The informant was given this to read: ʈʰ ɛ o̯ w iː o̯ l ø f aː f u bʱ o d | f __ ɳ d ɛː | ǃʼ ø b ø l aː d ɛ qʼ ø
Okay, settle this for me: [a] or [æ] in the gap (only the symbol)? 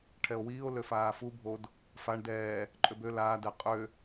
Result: a